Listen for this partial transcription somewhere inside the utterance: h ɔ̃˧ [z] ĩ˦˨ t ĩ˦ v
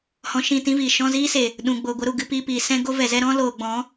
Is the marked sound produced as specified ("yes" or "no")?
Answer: no